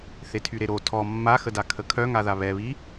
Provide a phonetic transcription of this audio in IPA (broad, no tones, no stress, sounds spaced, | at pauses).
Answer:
θ e tʰ y ɾ e ɾ o tʰ ɔ mː a x ə d a kʰ ə kʰ œ ŋ a ð a β ɛ β i